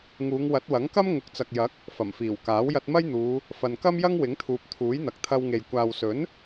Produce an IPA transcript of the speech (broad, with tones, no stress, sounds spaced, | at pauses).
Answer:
ŋ uː˨˧ ŋ w ɐ˨˥ t̚ w ɐ˨˥ ŋ k ɐ˥ m ŋ ʊ˨˥ k̚ t͡s ɐ˨ k̚ j ɐ˨˥ k̚ | f ɐ˨˩ m f iː˨˩ w k aː˨˥ w j ɐ˧ t̚ m ɐ˥ j n̪ uː˨˧ | f ɐ˨ n k ɐ˥ m j ɐ˥ ŋ w ɪ˨˥ ŋ t̪ʰ uː˨ p̚ t̪ʰ uː˨˥ j n̪ ɐ˨ k̚ t̪ʰ ɐ˧ w ŋ e˨ j kʷ aː˨ w s ɵ˨˥ n